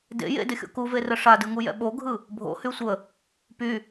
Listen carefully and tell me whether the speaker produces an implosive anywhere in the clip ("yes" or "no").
yes